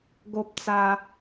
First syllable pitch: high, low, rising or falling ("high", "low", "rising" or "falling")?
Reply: high